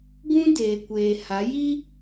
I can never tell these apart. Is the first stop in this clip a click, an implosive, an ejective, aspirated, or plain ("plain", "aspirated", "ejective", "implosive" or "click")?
plain